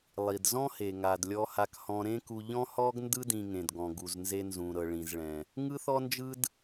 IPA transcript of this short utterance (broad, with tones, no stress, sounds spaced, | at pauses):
lˠ i˩ d z ɔ̃˥ h e˩ ŋ a˩ d lʲ ɔ˧ h a˧ k h ɔ̃˧ ɾ ẽ˥ k u˧ ʎ ɔ̃˥ h ɔ˥ ɡ n d ɯ˥ d ĩ˧ ŋ ẽ˩ d ɡ ɔ̃˩ ɡ u˩ z n z e˧ n z ũ˩ ɾ ɤ˩ ɭ ĩ˩ z ɭ ɛ̃˩ | ŋ ɯ˥ θ ɔ˥ n d͡ʒ ɯ˥ d